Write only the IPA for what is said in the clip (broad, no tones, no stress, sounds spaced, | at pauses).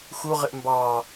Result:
x u ʁ ɪ ʔ m b ɑ